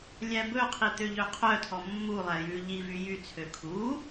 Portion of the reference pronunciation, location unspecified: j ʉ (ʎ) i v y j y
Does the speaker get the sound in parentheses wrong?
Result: no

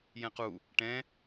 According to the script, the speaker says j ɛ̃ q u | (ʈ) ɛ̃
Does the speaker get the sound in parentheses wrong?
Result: no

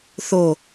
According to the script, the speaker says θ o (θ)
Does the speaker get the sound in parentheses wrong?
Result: yes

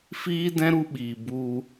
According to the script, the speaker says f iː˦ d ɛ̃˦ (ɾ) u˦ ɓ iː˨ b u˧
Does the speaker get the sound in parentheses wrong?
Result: no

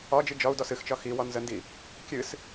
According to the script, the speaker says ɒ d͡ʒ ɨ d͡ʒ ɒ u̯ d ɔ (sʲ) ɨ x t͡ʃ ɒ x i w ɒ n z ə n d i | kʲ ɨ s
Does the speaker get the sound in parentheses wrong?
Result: yes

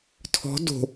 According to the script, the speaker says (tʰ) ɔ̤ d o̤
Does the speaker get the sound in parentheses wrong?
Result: no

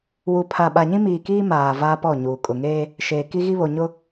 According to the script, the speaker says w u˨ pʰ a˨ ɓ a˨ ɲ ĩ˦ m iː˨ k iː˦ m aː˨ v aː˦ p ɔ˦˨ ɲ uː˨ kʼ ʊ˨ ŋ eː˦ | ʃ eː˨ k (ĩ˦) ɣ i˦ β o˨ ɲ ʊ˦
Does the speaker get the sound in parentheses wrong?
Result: yes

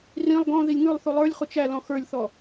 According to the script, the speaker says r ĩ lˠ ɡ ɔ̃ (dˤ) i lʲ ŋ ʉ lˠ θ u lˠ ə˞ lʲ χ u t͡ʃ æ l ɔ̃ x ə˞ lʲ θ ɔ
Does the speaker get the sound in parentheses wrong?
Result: yes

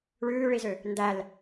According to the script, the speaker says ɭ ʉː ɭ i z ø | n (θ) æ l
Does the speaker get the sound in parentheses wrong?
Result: yes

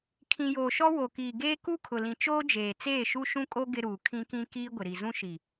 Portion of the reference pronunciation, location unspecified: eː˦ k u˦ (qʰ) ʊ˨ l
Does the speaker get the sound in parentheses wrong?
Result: yes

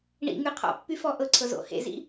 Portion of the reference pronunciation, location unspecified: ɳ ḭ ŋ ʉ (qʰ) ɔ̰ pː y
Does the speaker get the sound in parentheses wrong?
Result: no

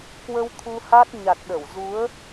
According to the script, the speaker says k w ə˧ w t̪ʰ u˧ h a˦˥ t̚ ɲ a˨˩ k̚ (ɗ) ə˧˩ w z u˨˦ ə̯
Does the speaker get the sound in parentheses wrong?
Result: no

